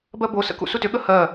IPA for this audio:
b ɜ b o s ə̰ k ṵ s u t ʏ ɠ ə h ɜ

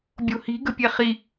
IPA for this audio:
bʲ o̤ h i̤ ɡ ə̤ pʲ ɛ χ i

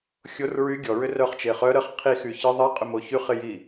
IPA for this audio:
xʲ o r ɹ y ɡʲ ɔ ɹ ʏ r œ χ t͡ʃ e χ œ ɾ ə χ qʰ i x y ç ɪ ðˤ i qʼ ʏ m o ç y χ ɪ j i

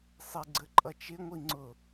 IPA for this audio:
sˤ ɪ ɡ͡ǀ ə ǃʼ ʌ t͡ʃ ɪ ŋʷ i ŋ͡ǀ ʊ

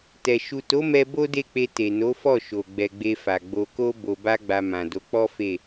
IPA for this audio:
t ɛ˨ ʃ u˨ t o˨˦ m ɛ˧ b o˦ d e˦˨ k͡p e˧ t e˨ n o˨˦ f ɔ˦˨ ʃ o˨ ɡ͡b ɛ˨ ɡ͡b e˧ f a˨ ɡ͡b o˧ k o˦ b o˧ b a˦ ɡ͡b a˧ m ã˨ d o˨˦ k͡p ɔ˦ f e˦˨

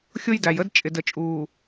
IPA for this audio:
xʲ ʊ˦ j d æ˨ j ə˦ d t͡ʃʼ ɪ˨ d ə˨ t͡ʃʼ uː˨

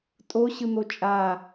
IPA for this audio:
tʼ o ɕ ɯ n̪ o t͡ʃʼ a

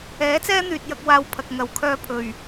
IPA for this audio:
ɛː˨˥ t͡s ɛː˥ n̪ yː˨ t̚ j ɐ˧ k̚ w aː˧ w pʰ ɐ˨ k̚ ŋ ɐ˨ w kʰ œː˧ pʰ ɵ˨˩ ɥ

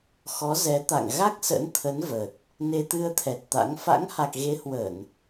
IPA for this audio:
x ɔ˨˦ z ɛ˨˦ t̪ a̰˧˨ ŋ ɣ a˦˥ k̚ s ə̰˧˥ n t̪ʰ ə˨˦ n v ə˨˩ t̚ | n e˧ t̪ ɨ˧ ə̯ t̪ʰ ɛ˨˩ t̚ t̪ a̰˧˥ ŋ f a̰˧˥ ŋ h a˨˩ k̚ ɣ e˨˦ h w ə˧˩˨ n

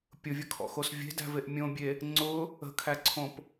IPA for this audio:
pʲ ʊ vʲ ə kʰ ɔ̰ x o s vʲ e̤ d æ̤ v e ʔ mʲ õ bʲ e | ŋ͡ǀ ʊ | ə̤ kʰ æ ǀʰ õ p

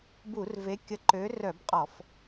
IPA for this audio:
b u˧˩˧ r v e˨˦ kʲ ə˨˦ ǃ ø˨˦ r œ˧˩˧ b qʼ ɔ˧˩˧ f

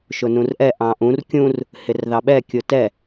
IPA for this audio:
ʃ ʊ n ũ r ʔ ɛ ʔ ɑ̃ ʔ ũ r kʲ ũ r | h ɪ r ð ɑ ɓ ɛ kʲ ʊ t ɛ

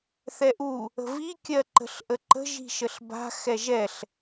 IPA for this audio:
θ ɛ ʔ u | ə̤ v i kʲ ɜ ǃ ə̤ ɬ ʔ ə ǃ ə̤ ʒ i̤ ʃ ə ɬ b a̤ x ɛ ʒ ɛ ɬ

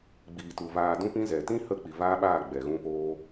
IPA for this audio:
ɡ͡b iː˨ t u˨ v aː˧ d ũ˦ p ĩ˦ z ɛ˨ t ĩ˦ h ə˧ k͡p i˨ v aː˦ ɓ aː˦˨ ɡ͡b ɛ˨ ɣ ũ˧ p oː˧

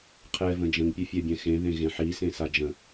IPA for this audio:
qʰ ɛ v ə̃ d͡ʒ ə̃ ŋ pʲ ɘ fʲ ɛ bʲ ɛ̃ x ẽ ð ẽ ɣ ẽ ħ i s ẽ s a d͡ʒ ə̃

